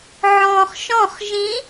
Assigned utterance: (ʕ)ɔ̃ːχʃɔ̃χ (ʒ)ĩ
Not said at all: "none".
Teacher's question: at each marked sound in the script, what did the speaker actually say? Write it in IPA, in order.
ʕ, ʒ

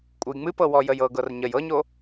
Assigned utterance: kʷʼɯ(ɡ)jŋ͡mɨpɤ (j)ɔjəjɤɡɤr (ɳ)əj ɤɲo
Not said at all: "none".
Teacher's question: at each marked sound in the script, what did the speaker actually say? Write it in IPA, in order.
none, w, ɲ

